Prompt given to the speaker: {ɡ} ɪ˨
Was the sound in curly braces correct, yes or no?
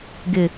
yes